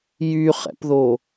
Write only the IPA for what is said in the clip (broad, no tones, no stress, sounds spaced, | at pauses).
j y χ ɛ̰ p ð o